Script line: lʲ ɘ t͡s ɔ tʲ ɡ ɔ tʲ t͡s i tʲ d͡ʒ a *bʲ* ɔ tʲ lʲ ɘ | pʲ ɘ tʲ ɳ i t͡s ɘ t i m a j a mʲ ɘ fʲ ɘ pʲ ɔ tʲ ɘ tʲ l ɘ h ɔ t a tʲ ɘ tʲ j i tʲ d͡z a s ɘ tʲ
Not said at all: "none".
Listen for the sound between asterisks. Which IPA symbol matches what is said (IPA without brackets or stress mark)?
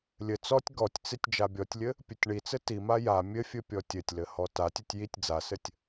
bʲ